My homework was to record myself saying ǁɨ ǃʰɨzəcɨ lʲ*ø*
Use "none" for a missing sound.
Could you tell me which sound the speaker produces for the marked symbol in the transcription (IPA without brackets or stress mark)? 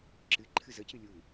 u